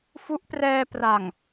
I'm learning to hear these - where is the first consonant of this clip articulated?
lips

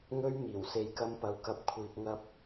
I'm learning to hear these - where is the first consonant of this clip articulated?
velum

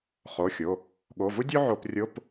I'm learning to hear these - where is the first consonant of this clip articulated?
uvula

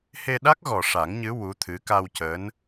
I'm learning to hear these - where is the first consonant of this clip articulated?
throat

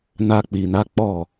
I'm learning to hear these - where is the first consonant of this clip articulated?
tongue tip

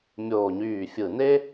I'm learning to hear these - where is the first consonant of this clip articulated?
lips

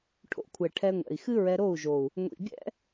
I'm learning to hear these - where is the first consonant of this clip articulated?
retroflex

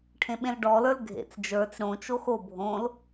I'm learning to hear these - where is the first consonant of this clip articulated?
retroflex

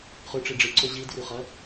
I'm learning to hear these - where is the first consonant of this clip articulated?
uvula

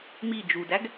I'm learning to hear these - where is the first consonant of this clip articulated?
lips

